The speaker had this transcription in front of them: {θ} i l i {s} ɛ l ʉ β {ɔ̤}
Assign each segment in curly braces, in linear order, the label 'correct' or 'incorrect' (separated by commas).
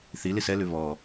correct, correct, incorrect